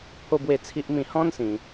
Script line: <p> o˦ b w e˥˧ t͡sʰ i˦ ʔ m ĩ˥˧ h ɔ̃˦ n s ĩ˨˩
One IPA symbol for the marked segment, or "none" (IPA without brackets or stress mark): pʰ